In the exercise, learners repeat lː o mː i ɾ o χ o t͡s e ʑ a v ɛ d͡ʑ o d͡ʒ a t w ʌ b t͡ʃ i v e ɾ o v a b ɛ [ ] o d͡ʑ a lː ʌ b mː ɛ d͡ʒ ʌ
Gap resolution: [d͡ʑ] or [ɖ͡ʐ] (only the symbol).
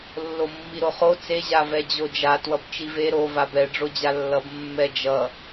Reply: ɖ͡ʐ